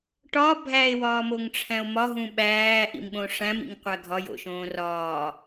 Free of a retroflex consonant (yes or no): no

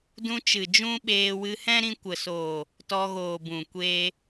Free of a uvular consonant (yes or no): yes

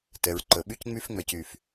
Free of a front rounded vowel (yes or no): no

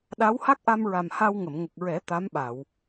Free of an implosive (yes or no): no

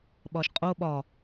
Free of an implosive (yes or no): no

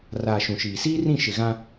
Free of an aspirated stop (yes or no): yes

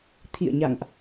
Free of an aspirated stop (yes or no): no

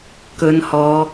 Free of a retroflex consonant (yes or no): yes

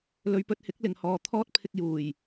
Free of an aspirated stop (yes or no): no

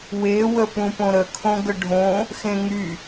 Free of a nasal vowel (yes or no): no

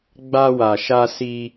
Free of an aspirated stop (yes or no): yes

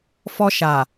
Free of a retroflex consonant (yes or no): yes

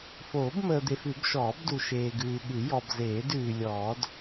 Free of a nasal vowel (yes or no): yes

